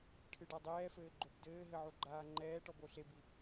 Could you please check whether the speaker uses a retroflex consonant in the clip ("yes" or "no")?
yes